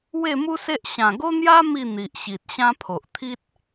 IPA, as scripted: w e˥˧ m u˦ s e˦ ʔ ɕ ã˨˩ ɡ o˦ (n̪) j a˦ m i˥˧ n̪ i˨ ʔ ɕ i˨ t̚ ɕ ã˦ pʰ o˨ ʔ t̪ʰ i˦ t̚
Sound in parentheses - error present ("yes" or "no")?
no